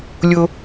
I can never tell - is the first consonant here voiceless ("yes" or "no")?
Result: no